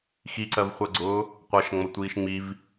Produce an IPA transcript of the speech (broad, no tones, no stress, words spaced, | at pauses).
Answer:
xiǀɜvχʷɜɡ͡ǀʊː | qʷʌʃŋ͡mʌtʷiːʃ ŋ͡miv